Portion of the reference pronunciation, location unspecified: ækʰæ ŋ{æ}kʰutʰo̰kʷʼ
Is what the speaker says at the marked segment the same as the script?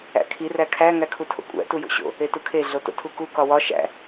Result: yes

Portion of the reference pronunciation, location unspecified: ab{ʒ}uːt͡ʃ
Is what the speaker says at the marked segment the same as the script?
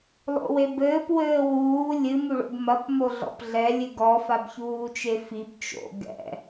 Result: no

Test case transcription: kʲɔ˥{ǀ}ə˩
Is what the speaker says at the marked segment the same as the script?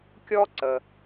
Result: yes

